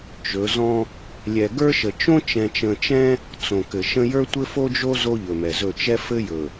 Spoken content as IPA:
t͡ʃ ɵ˨˦ z ɔ̃˦ | lʲ ɛ˨ ɡ ə˞˦ ʃ ə˨ t͡ʃ õ˦ t͡ʃ ɛ̃˨ t͡ʃ ə̃˨ t͡ʃ ɛ̃˦ | t͡s õ˨ k ɘ˨ ʃ ə̃˦ j ə˞˦ tʷ ɘ˦ f o˦ d͡ʒ o˦ z o˦ ʎ ɵ˨ m ɛ˨ z ɵ˦˨ t͡ʃ ɛ˦ f ɘ˦ j ɵ˨

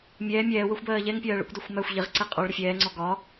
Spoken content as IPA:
mʲ ɛː mʲ ɛː w ɜ xʷ b ɜː ʎ ɛ ŋ pʲ ɜː ɭ ə̰ kʷ d ɒ xʷ m æ xʷ ʎ ɪ ʁ ǀ ɛ qʼ ɔ ɭ ɾ ə fʲ ɛː ŋ͡ǀ ɔ ɡ ɒ

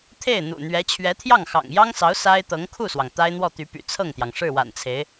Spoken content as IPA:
t̪ʰ e˥˩ ɪ̯ n̪ ṵ˨˩ n̪ ɥ ɛ˧˥ t͡ɕʰ ɥ ɛ˧˥ t̪ʰ j ɑ˥˩ ŋ x ɑ̰˨˩ ŋ j ɑ˥ ŋ s ɑ˧˥ ʊ̯ s a˥ ɪ̯ t̪ ɤ˧˥ ŋ kʰ u˥˩ s w ɑ˩ ŋ t̪ a˥ ɪ̯ n̪ w ɔ˥˩ t̪ y˧˥ p y̰˨˩ t͡sʰ ɤ˥˩ ŋ t̪ j ɑ˩ ŋ ʂ ɻ̩˥˩ w a̰˨˩ n t͡sʰ e˧˥ ɪ̯

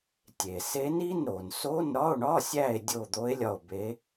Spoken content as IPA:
tʲ e˩ s e˧˥ n i˧˥˧ n ɾ o˩ n s o˧˥˧ n ɾ ɒ˧˥˧ o̯ ɳ ɒ˧˥˧ sʲ æ˦˨ e̯ dʲ o˦˨ d̪ o˧˥ e̯ lʲ ɒ˦˨ o̯ b e˧˥

